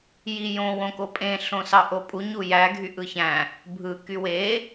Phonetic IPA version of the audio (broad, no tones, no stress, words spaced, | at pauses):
jijõ wõkopʼẽ ɬõsɑʔopʼu ɲujæ ɡʱyʔɯçæ̃ | bʱɯ kywe